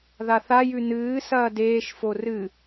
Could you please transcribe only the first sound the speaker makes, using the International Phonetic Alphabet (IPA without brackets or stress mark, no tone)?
ð